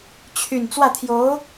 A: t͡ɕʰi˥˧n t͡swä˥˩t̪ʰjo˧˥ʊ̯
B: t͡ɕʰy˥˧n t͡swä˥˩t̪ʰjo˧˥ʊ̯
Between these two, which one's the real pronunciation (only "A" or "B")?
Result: B